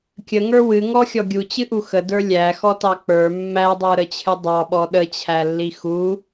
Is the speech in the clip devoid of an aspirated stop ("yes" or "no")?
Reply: no